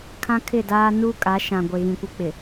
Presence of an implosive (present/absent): absent